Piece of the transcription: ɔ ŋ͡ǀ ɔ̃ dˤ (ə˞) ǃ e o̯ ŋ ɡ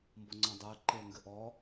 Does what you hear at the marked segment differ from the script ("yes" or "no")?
no